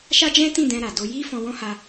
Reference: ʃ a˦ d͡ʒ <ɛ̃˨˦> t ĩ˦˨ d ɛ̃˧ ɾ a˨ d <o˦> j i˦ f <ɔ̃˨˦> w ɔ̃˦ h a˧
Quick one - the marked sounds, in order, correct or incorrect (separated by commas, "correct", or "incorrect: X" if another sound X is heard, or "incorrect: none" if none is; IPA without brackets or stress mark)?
incorrect: ɛ̃˦, incorrect: o˧, incorrect: ɔ̃˧